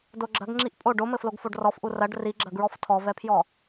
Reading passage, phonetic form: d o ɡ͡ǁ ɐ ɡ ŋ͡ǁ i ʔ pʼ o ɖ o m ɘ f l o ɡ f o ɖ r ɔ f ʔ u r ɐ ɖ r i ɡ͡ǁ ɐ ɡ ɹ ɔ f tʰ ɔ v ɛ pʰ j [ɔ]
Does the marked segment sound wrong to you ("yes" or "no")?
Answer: no